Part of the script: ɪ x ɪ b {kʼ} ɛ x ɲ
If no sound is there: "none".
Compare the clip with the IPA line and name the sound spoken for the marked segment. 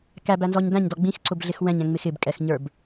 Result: kʼ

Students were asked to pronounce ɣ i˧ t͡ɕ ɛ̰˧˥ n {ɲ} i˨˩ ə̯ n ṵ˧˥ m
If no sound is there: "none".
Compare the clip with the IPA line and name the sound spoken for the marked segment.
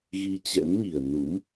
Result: ɲ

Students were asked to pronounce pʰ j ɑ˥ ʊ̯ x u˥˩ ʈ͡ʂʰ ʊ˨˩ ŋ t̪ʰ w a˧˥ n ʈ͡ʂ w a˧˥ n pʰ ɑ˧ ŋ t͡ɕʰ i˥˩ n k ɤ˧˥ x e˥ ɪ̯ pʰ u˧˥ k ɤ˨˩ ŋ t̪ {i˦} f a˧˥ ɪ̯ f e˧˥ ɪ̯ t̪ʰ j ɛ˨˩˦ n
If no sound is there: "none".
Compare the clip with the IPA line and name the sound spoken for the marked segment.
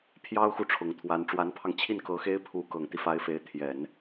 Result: i˦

